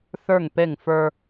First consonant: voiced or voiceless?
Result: voiceless